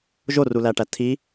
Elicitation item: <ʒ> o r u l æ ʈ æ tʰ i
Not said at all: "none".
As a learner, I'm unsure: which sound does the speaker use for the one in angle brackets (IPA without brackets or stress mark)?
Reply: ʒ